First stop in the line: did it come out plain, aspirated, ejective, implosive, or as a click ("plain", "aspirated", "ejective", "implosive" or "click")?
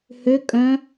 ejective